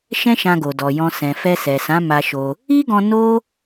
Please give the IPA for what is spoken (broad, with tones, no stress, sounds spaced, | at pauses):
ʃ ɛ̃˦ ʃ ã˧ ɡ o˨ d ɔ˨ j ɔ̃˧ s ɛ̃˨ f ɛ˧ s ɛ˨ s ã˨˦ m a˧ ʃ o˧ | i˦ ɡ ɔ̃˧ n o˦